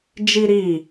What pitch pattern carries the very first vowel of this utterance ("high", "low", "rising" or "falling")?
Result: high